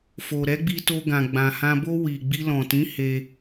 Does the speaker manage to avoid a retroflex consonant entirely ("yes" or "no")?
yes